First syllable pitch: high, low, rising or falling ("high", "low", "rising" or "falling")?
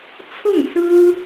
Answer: falling